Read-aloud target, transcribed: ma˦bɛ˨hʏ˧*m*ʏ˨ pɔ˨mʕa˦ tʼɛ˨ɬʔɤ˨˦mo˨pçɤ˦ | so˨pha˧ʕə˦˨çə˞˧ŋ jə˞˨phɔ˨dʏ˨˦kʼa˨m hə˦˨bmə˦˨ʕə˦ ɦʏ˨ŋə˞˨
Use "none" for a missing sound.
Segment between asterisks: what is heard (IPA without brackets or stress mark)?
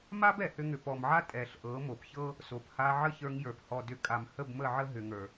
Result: ŋ